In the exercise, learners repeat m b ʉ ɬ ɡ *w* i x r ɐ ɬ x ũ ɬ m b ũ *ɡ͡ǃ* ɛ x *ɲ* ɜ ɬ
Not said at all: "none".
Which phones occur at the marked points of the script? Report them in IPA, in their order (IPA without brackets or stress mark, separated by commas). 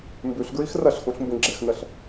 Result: ɹ, ɡ͡ǁ, n